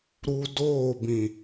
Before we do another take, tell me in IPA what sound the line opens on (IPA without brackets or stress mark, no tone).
ɾ